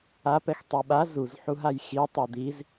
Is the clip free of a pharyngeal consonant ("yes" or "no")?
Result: no